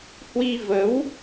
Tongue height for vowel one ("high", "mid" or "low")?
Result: high